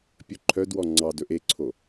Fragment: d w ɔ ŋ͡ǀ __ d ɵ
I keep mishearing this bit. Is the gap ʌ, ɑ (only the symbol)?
ɑ